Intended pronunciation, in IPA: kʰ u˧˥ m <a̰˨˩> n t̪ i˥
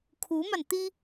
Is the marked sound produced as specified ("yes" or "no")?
no